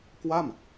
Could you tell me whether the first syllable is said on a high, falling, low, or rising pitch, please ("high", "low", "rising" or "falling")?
falling